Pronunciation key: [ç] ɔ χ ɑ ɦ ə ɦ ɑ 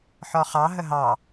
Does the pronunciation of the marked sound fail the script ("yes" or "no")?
yes